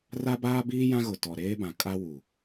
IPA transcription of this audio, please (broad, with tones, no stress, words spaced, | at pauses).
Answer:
ra˦ baː˦biː˦ jã˦ɣʊ˨ tɔ˨ɾeː˦bã˨ kʼa˦wu˨